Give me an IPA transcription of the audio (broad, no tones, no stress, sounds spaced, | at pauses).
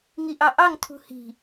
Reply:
ŋ i ʔ ɑ ʔ ɑ ŋ tʰ ṳ h i̤